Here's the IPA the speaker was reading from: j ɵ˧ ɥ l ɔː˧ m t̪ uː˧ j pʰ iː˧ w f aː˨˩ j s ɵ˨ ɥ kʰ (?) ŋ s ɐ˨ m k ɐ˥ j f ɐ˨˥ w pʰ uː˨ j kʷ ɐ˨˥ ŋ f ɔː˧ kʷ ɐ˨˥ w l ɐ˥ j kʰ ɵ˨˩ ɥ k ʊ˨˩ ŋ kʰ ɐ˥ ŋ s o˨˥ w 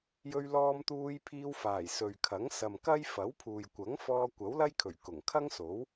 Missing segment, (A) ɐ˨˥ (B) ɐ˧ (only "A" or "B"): A